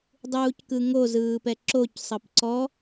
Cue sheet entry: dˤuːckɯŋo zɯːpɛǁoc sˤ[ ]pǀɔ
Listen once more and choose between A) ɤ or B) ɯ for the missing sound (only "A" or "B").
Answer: A